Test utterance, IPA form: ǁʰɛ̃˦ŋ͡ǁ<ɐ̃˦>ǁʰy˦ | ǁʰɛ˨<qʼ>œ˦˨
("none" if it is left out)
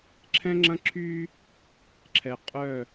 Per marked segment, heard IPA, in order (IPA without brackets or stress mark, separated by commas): ɐ̃˦, qʼ